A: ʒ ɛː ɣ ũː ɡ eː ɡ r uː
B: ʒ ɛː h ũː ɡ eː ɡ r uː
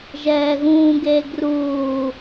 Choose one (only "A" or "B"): A